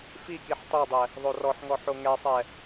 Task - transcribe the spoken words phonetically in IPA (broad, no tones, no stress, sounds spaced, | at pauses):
f i k i ħ tˤ o dˤ ɛ | ðˤ o r ɔ ħ ŋ ɔ ħ o ŋ ɛ sˤ ɛ